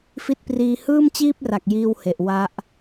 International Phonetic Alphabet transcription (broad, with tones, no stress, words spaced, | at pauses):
fi˦˥t̚priː˧ hɯː˥˩mt͡ɕiː˥˩p̚ra˨˩k̚ jiː˥˩whe˨˩ʔ wa˦˥ʔ